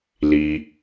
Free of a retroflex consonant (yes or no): yes